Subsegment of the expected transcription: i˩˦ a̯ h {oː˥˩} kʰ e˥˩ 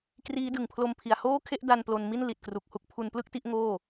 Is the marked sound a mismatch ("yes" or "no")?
no